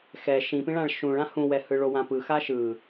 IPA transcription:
x ɛ ʃ ĩ p ĩ ɭ ã ɭ ʃ ũ ɭ ã h ũ w ɛ h ɯ ɭ o w ã p ɯ x a ʃ ɯ

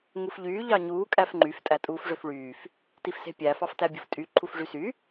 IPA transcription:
ŋ u f ʎ yː ʎ ɑ ɲ uː kʼ æ f ŋ͡ǃ y f tʼ æ tʼ uː f ʐ ø f ɭ yː f | t i f s e̤ pʲ æ f ɑ f t æ bʲ ṳ f tʼ y ǃʰ u f ʐ y s y

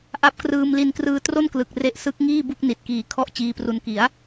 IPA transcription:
ʔ a˦˥ p̚ k r ɯː˧ m l i˧ n k r ɯː˧ t r o˥˩ n k l ɯ˨˩ k̚ r e˦˥ ʔ s ɯ˦˥ k̚ ŋ iː˥˩ b u˥˩ k̚ n i˨˩ t̚ k iː˨˩ kʰ ɔ˥˩ ʔ t͡ɕ iː˧ p r u˧ n k i˩˦ a̯

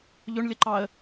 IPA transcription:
ʎ ʊ ɳ lʲ ə ǃ ɑ ə̯

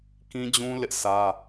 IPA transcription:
k ĩ˦ d͡ʑ ũ˦ l ɪ˦ ʔ sʰ ä˦

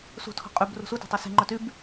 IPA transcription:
s ṳ tʰ ɔ̤ qʼ y b r ṳ s u t e̤ tˤ y s e̤ ŋ͡ǃ œ t y b

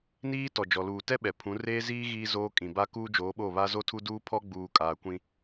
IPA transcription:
n iː˦ t ɔ˨ d͡ʒ ɔ˨ l uː˨ t ɛ˦ ɓ ɛ˨ pʰ ũ˨˦ r eː˦ z iː˦ ɣ iː˦ z oː˦ kʼ ĩ˨ b a˦ k uː˦ d͡ʒ oː˨˦ ɓ o˦˨ β a˦ z o˦ tʰ u˦ d uː˦ pʰ ɔ˦ ɡ͡b uː˨ kʼ aː˨ kʷ ĩ˦

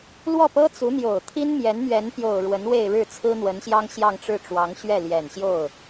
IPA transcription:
l w ɔ˥˩ p ɤ˥ t͡s u˧˥ n̪ j o˨˩ ʊ̯ t̪ʰ i˥ n m j ɛ˧˥ n m ɥ ɛ˧˥ n p j o˨˩ ʊ̯ ɻ w ə˧˥ n w e˥˧ ɪ̯ ɻ ɻ̩˥˩ t͡sʰ ɹ̩˥ n̪ w ə˧˥ n ɕ j ɑ˥ ŋ ɕ j ɑ˥˧ ŋ ʈ͡ʂ ɻ̩˥˩ ʈ͡ʂ w ɑ˧˥ ŋ ɕ ɥ ɛ˥˩ l j ɛ˨˩ n ɕ j o˥˩ ʊ̯

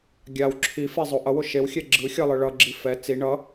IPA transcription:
ɡʲ a w ǁʰ i f e zˤ o ʔ ʌ w o ʃ e w xʲ ɛ ɡ͡ǁ ɯ xʲ ʌ lˠ ɯ ɭ ʌ ɡ͡ǁ i f ɛ t͡s i ɳ ʌ

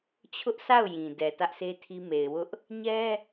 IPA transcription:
t͡ɕʰ ʊ˦ ʔ sʰ a˦˨ ʊ̯ j ĩ˨ d ɛ˨ t ä˦ ʔ s e˦ tʰ i˦ m e˨ ɪ̯ w ʊ˦ ʔ | ɲ ɛ˦

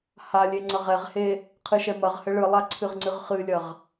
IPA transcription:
h a lʲ e ŋ͡ǀ ɐ ʁ ɛ ʁ h e | qʰ ɨ ʃ ɛ m ɐ ʁ h ɘ ɭ ɨ lˠ a ǀʰ ɨ ʁ ŋ͡ǀ ɨ ʁ χ ɨ lʲ ɐ ʁ

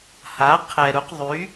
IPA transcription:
h a˩˥ qʰ ɛ˩ ɾ u˩˥ q ðˤ y˩˥

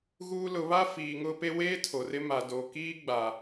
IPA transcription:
ɣ uː˦ l ʊ˨˦ β a˦ f iː˨ ŋ ʊ˦ p e˦ w eː˦ tʰ o˨ r ɪ˦ m a˨ d o˨ k iː˦ ɡ͡b a˨

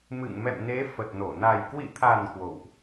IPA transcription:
m ɨ̰˧˨ ŋ m ɛ̰˧˨ m n e˨˦ f ə˨˩ t̚ n o˧˩ n a˨˩ j k w ḭ˧˨ t̪ʰ a˨˩ n k w o̰˧˨ w ʔ

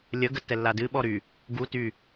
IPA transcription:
lʲ ə ɡ ə tː ɛ lː a d ɨ ɓ ɔ ɾ y | ɡ u t y

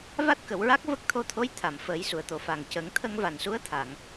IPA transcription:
v a˦˥ t̚ k ə˨˩˨ w ɹ a˦˥ k̚ v ə˦˥ k̚ t̪ʰ o˧ t̪ʰ o˧˥ j t̪ʰ a˨˩˨ m f əː˨˩˦ j s u˨˩˨ ə̯ t̪ o˨˩˨ f a˨˩ ŋ c ə˨˩˦ ŋ t̪ʰ ə˧ ŋ v a˨˩ n s u˧˥ ə̯ t̪ʰ a˨˩˨ ŋ

